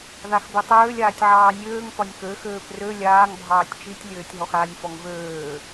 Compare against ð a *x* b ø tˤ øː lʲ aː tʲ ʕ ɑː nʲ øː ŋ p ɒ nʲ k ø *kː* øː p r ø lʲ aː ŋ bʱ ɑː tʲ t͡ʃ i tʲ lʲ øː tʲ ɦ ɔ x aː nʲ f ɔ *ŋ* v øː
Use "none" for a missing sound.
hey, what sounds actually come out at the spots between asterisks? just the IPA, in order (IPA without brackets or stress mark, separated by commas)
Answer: x, x, ŋ